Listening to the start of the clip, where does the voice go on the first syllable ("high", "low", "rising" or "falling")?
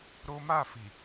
high